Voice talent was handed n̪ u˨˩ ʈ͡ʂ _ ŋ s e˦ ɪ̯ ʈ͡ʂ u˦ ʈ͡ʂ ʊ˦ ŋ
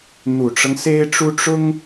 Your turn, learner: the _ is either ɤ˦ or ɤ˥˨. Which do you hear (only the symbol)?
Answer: ɤ˦